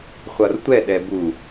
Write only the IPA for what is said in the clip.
χʷ ʌ r tʷ ɛ ɗ ɛ b u

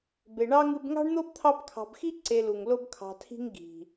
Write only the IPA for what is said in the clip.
b e˨ ɳ ɑ˥ ŋ ɨ˦ b ŋ ɑ̤˥ ɳ n̪ o˥ b t̪ʰ ɑ˦ b kʰ ɑ̤˨ b x i˥ ǀ e˨ l u˩ ŋ l o˦ b kʰ ɑ̤˨ tʰ i̤˦ ŋ ɡ i̤˩

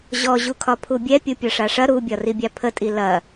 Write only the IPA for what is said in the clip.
ʑ ɔ ʑ u kʰ ɒ pʰ u bʲ ɛ pʲ u pʲ ɒ ʂ a ʂ ɐ ɾ u bʲ ɒ r i bʲ a pʰ ə tʼ i l ɐ

